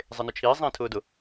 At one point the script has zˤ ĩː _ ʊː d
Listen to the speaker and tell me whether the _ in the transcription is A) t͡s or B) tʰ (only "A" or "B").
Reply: B